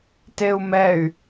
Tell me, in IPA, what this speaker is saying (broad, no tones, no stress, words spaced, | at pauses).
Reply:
teu̯mɛy̯